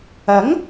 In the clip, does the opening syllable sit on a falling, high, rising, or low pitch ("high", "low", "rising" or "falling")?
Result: rising